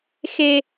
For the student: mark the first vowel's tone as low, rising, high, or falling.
high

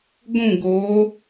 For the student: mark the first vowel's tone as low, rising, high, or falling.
falling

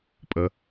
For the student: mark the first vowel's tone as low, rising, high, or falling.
low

